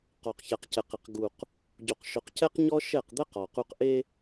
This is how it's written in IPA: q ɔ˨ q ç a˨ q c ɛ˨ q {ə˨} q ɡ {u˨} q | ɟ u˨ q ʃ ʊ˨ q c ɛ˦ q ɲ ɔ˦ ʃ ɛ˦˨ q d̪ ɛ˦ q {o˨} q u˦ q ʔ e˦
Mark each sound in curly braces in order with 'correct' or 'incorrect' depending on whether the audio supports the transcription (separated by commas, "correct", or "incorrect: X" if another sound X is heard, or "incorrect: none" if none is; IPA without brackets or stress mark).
incorrect: ɪ˨, correct, incorrect: ɔ˨